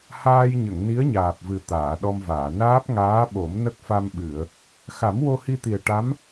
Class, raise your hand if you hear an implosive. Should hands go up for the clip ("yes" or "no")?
yes